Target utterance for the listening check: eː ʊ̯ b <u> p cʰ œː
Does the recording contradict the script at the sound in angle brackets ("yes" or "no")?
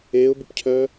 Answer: no